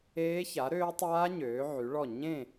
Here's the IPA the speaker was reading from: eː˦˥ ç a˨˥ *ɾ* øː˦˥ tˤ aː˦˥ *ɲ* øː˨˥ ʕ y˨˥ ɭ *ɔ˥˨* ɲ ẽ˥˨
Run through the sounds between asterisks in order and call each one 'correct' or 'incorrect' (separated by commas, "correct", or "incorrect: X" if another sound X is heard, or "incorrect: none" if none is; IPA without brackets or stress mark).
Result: correct, correct, correct